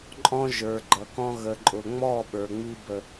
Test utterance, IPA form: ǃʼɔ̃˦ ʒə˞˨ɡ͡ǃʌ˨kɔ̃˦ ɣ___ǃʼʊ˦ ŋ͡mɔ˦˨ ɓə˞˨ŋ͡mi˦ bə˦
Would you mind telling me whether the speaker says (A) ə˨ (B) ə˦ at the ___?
B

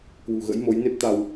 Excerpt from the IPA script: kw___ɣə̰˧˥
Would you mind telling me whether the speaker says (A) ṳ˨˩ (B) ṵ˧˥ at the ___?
A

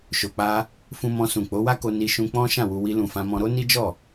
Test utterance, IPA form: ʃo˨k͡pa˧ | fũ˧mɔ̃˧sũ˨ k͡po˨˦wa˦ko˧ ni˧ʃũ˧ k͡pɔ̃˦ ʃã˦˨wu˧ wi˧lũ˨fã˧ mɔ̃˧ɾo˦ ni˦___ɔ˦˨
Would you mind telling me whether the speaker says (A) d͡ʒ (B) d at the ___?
A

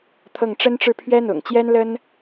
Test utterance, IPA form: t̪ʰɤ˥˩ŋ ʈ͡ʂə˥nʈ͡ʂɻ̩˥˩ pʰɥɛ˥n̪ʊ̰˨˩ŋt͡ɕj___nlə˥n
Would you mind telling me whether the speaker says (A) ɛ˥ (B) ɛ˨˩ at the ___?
A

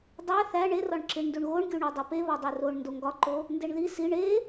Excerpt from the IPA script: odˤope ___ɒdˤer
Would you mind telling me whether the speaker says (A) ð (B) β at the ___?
B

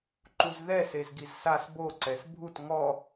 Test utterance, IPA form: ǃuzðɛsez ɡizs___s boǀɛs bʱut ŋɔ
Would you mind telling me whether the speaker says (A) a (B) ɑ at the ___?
A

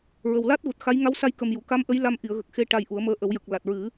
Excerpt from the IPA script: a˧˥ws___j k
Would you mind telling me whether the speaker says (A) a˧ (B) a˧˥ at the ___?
A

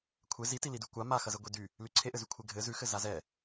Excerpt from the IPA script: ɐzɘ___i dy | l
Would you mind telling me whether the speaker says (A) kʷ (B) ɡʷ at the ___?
B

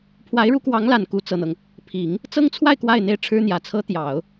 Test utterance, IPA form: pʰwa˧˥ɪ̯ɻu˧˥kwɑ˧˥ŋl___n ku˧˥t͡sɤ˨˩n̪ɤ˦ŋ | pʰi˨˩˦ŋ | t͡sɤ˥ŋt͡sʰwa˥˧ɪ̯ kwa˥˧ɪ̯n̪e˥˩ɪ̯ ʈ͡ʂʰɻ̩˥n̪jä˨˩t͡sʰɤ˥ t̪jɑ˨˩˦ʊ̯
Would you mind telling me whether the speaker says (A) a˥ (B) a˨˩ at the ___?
B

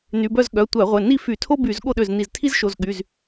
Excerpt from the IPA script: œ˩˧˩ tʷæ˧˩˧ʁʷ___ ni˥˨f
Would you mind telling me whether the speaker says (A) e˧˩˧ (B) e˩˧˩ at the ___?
B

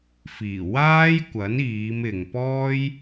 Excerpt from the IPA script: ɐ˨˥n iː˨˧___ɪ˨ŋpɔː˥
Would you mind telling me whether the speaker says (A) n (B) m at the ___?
B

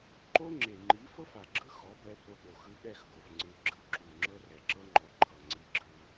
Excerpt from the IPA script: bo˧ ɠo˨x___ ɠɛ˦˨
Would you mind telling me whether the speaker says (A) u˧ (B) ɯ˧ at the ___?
B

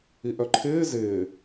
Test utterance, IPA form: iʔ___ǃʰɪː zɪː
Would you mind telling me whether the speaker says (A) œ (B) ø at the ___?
A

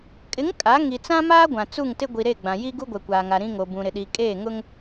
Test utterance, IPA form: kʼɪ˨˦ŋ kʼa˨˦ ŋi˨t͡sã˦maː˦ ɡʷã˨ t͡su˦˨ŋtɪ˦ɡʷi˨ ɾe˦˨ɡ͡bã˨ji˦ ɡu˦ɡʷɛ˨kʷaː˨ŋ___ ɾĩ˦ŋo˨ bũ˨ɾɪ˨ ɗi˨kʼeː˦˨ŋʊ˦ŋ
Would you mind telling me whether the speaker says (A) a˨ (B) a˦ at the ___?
A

